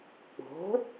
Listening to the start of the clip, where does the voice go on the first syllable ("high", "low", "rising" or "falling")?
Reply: rising